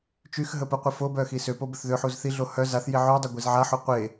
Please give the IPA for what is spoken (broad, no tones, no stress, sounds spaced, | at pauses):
t͡ʃ y x ɦ ə p ə qʷ e f o b œ x i s ø p o b ə θ ð ø ħ u z θ i ɮ o h œ z a θ j i ʕ y dˤ ə ɡʷ i z ʕ a ħ o qʷ e